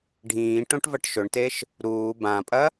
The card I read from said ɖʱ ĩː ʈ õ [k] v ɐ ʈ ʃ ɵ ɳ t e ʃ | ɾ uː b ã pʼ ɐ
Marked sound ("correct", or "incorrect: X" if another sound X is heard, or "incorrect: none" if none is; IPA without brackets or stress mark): incorrect: ʈ